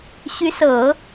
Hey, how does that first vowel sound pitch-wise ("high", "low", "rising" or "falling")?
rising